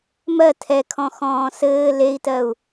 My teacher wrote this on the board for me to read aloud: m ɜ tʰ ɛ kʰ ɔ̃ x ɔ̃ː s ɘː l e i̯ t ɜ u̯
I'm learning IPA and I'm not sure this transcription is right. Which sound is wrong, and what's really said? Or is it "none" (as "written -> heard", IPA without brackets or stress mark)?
none